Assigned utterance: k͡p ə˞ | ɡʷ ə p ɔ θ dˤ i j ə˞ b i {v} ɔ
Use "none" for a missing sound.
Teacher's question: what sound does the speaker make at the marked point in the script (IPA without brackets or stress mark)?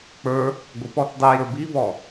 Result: v